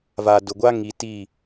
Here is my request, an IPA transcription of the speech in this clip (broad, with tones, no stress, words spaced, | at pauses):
va˨dʊ˨ɡʷa˦ ŋi˨ti˦˨